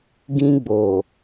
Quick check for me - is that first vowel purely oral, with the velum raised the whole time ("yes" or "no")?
no